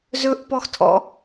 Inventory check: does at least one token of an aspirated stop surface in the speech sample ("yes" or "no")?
yes